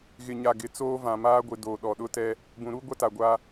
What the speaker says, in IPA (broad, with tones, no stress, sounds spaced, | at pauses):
ɣ ɪ˨ ɲ a˨ ɡ ɪ˨ t͡s oː˦ v ã˨ m aː˦ ɡʷ ɪ˨ d oː˨ ɗ ɔ˨ ɗ ʊ˦ t ɛ˦ | b ũ˨ ɾ uː˦ ɡʷ a˦ t a˨ ɡʷ aː˦